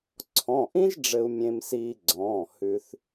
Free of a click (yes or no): no